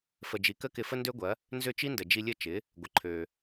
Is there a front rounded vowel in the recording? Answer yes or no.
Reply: yes